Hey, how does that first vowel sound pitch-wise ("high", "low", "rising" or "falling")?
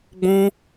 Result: high